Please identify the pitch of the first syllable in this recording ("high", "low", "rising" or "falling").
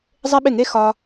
high